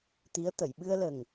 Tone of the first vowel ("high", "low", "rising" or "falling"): rising